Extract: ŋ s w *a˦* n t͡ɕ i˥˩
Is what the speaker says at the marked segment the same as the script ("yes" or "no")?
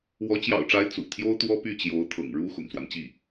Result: yes